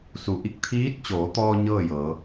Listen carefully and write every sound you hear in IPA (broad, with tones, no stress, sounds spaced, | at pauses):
s u˩˧ ʔ i˧˩ k̚ t̪ʰ iː˧˥ t̚ t͡ɕ oː˩˧ t̪ ɔː˧ ɲ ɤː˥˨ j ɤː˩˧